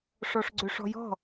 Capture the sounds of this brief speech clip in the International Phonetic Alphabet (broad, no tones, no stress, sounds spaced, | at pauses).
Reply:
ʂ ɔ ʂ ɡ͡ǀ ʏ ʂ ɔ̤ j ɔ̤